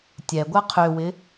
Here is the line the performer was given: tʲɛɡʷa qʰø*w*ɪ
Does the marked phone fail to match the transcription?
no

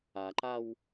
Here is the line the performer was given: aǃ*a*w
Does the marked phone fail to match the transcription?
no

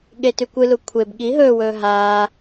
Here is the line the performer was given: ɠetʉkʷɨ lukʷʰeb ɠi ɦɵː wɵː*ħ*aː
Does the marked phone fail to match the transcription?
yes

